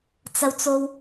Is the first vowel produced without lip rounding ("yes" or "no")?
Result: yes